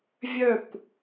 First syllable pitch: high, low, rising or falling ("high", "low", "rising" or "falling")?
falling